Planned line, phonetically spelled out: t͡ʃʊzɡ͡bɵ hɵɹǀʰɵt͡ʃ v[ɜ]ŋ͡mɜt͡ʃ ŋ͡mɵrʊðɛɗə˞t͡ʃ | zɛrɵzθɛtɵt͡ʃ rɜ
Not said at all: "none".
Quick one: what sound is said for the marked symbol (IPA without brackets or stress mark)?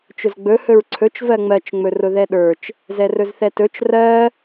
ɜ